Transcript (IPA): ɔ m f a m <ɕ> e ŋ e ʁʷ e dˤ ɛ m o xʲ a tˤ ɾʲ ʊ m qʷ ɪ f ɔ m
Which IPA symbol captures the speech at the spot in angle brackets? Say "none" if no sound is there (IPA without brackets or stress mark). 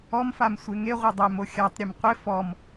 sʷ